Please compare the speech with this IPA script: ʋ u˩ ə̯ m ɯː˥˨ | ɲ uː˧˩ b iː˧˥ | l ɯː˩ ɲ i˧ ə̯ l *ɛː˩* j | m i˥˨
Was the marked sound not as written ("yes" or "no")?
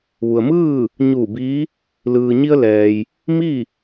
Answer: no